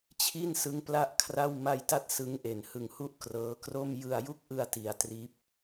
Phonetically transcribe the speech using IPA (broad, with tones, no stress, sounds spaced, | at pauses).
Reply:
t͡ɕʰ i˥˩ n s ɯ˦˥ ŋ p l a˥˩ ʔ kʰ r a˥˩ w m a˧ j t a˦˥ t̚ s ɯ˦˥ ŋ ʔ e˨˩ n h ɯ˨˩ ŋ h u˥˩ ʔ k r ɤː˦˥ k r o˥˩ m j ɯ˧ a̯ j u˥˩ k̚ ʔ ɯ˧ a̯ t i˩˦ a̯ t r iː˦˥ p̚